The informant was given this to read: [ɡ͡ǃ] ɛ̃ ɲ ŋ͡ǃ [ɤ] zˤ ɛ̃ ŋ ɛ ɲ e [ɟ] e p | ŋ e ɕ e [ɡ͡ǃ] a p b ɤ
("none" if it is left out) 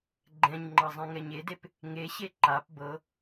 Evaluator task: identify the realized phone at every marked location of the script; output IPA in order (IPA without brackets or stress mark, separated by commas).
ɡ͡ǃ, ɤ, d, ǃ